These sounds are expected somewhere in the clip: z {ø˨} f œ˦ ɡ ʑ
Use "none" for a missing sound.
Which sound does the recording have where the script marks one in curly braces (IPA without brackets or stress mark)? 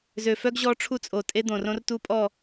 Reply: ø˨